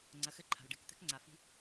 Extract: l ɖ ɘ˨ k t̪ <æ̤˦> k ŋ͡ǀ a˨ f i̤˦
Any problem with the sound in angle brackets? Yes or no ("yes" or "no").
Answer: yes